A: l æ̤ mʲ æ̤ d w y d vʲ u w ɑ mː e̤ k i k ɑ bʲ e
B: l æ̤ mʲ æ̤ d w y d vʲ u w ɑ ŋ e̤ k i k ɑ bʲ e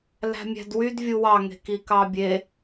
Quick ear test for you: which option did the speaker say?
B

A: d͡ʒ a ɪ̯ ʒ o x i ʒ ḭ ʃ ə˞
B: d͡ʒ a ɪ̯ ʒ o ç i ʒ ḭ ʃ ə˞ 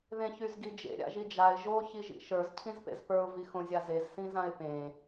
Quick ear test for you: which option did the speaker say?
B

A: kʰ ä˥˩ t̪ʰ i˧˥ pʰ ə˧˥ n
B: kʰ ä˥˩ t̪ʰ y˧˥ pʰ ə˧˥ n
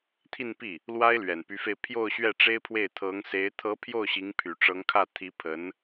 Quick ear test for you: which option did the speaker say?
A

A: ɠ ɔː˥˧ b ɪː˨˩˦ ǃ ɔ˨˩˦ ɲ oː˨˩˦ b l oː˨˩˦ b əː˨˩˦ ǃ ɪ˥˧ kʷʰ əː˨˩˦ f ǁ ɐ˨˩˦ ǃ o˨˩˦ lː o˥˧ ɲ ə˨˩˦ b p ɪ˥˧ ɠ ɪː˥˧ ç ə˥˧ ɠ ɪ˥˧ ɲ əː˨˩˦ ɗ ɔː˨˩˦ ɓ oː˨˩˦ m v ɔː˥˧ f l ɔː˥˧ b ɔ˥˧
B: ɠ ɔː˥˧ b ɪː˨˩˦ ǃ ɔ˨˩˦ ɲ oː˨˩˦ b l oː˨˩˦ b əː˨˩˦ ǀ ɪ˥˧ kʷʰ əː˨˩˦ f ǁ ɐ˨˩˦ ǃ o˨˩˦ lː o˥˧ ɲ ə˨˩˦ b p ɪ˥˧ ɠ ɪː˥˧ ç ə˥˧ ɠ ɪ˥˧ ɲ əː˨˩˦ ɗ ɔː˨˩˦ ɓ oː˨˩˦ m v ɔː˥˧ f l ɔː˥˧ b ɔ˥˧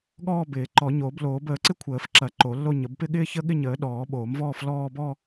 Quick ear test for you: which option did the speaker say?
B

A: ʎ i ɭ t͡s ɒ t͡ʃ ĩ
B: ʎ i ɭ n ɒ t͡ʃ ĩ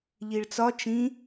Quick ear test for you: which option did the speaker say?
A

